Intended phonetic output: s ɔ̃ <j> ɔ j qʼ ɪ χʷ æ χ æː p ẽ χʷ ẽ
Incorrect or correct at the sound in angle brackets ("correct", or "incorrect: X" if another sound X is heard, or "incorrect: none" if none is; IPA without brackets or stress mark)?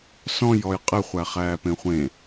correct